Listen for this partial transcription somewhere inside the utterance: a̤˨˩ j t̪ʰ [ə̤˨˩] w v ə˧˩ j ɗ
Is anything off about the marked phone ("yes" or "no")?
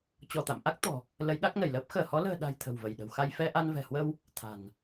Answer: no